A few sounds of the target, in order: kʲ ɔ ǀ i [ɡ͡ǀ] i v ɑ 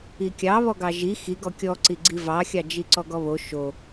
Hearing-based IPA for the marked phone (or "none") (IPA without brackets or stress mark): ɡ͡ǀ